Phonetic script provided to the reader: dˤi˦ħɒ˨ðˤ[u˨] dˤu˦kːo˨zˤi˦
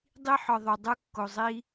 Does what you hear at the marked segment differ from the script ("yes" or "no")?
yes